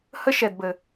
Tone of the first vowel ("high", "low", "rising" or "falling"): high